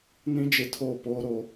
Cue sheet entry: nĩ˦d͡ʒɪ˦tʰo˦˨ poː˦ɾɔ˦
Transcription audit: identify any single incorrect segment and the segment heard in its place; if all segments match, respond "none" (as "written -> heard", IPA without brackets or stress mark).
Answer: ɔ˦ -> o˦